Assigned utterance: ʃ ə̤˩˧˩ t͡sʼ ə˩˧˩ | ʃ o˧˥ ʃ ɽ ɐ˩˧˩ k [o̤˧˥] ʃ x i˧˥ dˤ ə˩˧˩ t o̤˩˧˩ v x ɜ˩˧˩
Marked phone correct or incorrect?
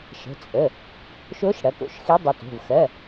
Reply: incorrect